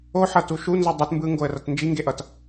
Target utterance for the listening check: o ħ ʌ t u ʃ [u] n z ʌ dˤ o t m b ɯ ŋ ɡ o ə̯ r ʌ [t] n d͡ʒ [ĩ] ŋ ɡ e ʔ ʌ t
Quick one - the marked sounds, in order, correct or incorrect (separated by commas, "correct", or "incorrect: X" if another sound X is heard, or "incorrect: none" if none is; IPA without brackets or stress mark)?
correct, correct, incorrect: i